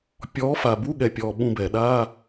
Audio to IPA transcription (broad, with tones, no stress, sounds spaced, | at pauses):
pʲ ɔ˨˦ f a˨˩ b u˧˥˧ ɠ ɛ˨˩ pʲ ɔ˨˩ ɓ ũ˦˨ b ɛ˧˩˧ ɗ a˧˥˧